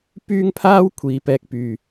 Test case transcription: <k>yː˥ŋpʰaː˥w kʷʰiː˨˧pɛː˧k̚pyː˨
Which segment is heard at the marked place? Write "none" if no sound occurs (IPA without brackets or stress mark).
p